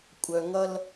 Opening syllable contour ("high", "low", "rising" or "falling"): low